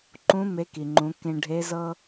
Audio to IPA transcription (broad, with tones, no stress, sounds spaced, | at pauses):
ǃ ũ˧˥ m e˧˥ k i˩ ŋ͡ǃ ũ˩˧ k ẽ˧ ɖʱ e˧˥ z ɤ˥